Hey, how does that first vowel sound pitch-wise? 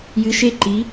rising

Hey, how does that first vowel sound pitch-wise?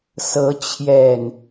rising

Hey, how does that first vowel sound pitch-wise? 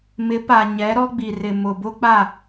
rising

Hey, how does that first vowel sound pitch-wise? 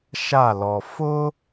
falling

